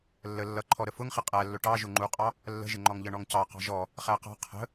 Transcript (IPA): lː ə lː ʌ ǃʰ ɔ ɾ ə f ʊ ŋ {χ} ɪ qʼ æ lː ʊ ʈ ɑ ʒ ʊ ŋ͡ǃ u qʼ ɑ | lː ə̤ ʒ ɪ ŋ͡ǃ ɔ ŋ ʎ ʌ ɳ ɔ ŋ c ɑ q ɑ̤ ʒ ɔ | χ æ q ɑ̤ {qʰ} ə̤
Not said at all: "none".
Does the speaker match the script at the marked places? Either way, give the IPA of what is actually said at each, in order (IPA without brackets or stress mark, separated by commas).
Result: χ, qʰ